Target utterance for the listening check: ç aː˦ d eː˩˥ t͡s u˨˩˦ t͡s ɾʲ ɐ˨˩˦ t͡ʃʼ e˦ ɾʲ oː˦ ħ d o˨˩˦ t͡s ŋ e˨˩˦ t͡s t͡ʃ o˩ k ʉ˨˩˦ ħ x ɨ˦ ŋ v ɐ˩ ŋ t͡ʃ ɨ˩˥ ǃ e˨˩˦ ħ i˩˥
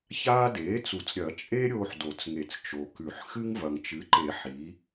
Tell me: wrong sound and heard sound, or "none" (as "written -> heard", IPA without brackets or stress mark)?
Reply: none